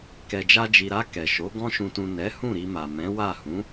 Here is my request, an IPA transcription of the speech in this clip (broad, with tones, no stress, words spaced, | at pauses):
kɛ˨d͡ʒa˧d͡ʒi˨ɾa˧ kɛ˨ʃo˨˦ ɡɔ̃˧ʃũ˨tũ˨ nɛ˨˦ hũ˦˨ɾi˧ma˨mɛ̃˨˦ wa˦˨ hũ˨˦